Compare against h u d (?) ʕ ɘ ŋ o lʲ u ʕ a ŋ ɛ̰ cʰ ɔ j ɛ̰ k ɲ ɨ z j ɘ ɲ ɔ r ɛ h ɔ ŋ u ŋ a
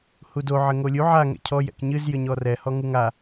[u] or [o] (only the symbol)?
o